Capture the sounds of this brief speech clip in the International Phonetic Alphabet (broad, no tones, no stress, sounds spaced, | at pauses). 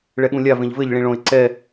ɭ ɛ ɠ ũ lʲ a v ẽ ʎ v ɘ ʎ ɭ ĩ ɭ õ ɪ̯ ǀ ɛ